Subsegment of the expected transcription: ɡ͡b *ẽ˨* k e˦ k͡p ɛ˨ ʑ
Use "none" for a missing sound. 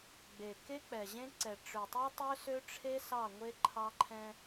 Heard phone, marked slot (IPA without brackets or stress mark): e˨